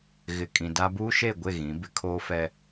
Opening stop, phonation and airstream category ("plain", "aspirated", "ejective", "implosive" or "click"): ejective